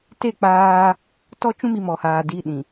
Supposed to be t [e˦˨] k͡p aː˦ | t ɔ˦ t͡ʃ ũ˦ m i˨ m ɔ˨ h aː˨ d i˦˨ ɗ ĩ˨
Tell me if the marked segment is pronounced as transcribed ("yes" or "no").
yes